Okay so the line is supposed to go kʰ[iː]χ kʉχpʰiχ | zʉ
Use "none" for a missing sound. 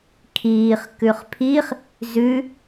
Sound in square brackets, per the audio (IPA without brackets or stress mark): iː